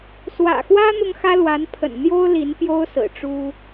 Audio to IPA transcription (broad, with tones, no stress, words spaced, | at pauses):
swä̰˨˩xwä˥ n̪ʊ˥ŋxä˥lwa˧˥npʰə̰˨˩n n̪jo˥ʊ̯ li˧˥npjo˥ʊ̯ sɹ̩˨˩ʈ͡ʂu˥